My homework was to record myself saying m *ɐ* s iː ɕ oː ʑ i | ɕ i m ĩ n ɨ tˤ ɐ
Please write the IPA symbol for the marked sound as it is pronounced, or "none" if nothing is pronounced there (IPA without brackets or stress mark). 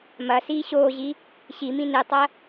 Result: ɐ